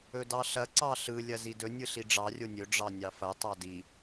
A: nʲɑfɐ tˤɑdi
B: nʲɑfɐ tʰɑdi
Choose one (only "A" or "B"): A